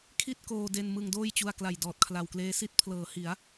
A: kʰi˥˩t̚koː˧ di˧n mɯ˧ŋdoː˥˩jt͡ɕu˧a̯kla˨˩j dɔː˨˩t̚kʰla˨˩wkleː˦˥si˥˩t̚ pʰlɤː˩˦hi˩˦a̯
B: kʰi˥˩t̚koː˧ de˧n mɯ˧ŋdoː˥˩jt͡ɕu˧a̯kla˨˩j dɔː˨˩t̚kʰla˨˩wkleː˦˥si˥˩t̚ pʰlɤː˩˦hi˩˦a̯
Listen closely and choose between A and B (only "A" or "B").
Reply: B